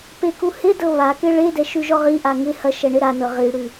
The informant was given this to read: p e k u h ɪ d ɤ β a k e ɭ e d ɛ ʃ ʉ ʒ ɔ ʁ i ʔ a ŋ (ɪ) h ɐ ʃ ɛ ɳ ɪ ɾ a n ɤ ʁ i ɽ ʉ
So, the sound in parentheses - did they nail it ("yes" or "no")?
yes